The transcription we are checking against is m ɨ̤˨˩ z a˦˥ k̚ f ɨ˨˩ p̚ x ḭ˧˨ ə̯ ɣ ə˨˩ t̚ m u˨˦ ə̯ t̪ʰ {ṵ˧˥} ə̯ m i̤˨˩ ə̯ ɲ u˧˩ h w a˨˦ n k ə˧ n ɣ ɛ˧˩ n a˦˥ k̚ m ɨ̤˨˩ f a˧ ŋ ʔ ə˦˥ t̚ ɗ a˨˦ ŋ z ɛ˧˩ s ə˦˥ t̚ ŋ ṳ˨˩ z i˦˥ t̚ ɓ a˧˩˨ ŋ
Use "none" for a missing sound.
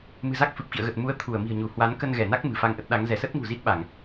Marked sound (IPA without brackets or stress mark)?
u˧˩